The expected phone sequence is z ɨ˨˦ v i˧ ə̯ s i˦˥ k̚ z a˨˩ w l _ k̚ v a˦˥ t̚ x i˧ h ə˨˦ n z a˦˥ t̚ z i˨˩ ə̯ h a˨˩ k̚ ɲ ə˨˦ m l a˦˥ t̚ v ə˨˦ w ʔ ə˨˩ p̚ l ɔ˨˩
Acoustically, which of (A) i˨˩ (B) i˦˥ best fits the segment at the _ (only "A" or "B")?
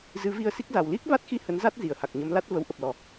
B